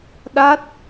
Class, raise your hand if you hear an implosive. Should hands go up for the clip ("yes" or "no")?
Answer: yes